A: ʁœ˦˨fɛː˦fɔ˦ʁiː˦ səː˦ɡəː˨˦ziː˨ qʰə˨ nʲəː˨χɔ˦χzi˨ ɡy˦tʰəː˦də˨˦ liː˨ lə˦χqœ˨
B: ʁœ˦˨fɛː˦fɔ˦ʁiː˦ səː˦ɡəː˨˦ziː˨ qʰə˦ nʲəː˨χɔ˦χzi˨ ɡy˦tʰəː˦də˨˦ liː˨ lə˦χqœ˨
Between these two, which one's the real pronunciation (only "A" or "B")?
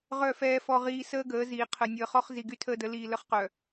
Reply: A